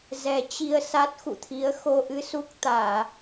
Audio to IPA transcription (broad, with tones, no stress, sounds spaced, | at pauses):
z ɛ˨˩ t͡ɕ i˧ ə̯ s a˦˥ t̚ x ṵ˧˨ t̪ʰ i˨˦ ə̯ x o˧ ʔ ɨ˧ s u˦˥ k̚ t̪ aː˧˩˨